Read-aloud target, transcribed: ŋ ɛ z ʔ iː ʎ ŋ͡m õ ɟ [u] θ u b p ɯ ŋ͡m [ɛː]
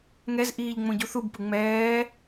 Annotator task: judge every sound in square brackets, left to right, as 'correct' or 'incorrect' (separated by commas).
correct, correct